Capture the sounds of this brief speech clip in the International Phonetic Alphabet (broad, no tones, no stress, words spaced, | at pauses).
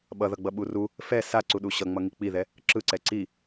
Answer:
ɓʌðʌɡ͡bʌɓu ru | fɛ saǀuɗu ɕʌŋ͡mʌŋi k͡piðɛ | ǁɯǀɛ ǀi